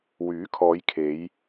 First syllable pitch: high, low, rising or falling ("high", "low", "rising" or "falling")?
rising